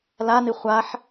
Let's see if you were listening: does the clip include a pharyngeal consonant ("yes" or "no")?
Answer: yes